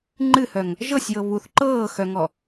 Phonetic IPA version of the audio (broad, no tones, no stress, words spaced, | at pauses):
ŋ͡ǃɨhœŋ | ʒɤsʲjɤ βuθ ǃɤːxœŋɔ